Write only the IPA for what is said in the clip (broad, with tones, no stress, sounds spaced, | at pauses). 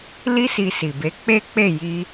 l i˦ s i˧ s i˨ b e˨˦ k͡p e˦ k͡p e˦˨ j i˧